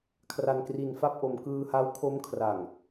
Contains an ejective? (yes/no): no